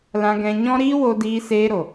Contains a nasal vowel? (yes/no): yes